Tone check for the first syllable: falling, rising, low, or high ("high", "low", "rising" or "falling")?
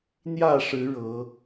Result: falling